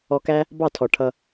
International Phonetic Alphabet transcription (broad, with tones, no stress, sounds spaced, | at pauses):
ɔ˧ k æ˦ | b ɑ˦˨ tʰ ɔ˨ ʈʰ ʌ˧